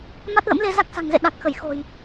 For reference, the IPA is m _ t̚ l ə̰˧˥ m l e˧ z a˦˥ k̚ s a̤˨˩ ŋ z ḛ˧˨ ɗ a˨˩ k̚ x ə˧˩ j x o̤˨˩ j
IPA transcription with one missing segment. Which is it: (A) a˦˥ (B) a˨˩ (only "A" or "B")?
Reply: A